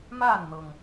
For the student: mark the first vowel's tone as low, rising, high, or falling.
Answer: falling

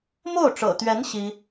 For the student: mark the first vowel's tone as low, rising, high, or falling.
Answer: falling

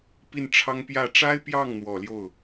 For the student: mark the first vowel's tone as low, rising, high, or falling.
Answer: falling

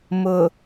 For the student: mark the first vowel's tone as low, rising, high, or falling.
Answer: low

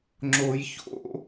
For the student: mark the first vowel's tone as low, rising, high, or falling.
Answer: low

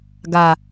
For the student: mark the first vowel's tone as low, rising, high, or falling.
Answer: low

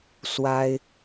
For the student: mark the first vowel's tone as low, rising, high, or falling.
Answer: high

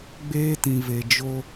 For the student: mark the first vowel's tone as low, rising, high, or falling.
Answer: high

